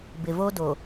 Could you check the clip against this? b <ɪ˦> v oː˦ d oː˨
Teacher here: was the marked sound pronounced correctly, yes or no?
no